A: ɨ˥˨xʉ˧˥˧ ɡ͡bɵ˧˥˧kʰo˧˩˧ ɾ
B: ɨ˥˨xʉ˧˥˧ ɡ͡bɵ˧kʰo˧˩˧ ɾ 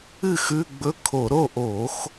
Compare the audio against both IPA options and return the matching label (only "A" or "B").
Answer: A